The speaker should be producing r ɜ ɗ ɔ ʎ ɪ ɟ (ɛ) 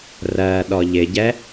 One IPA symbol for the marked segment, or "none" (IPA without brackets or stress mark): ɛ